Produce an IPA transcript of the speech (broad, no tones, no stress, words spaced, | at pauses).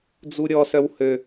d͡zuɾʲɔsœw hø